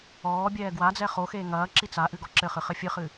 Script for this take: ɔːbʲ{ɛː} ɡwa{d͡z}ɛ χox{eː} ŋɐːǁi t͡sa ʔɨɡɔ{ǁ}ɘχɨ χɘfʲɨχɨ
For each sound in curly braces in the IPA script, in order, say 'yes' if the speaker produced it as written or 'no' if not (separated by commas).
yes, yes, yes, yes